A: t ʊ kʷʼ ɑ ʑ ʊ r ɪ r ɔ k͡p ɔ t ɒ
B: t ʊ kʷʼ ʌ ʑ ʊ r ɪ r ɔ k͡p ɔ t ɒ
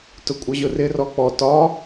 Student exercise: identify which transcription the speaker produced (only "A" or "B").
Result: B